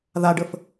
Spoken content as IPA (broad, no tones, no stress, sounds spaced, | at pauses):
ð a ɖ ə f